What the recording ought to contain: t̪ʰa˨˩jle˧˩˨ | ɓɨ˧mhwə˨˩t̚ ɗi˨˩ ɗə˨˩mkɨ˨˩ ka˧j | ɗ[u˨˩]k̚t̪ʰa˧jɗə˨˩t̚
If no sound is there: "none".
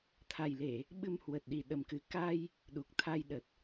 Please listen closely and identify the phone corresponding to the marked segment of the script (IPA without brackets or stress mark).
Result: u˨˩